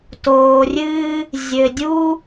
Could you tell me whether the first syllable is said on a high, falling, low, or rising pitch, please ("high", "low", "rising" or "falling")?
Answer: low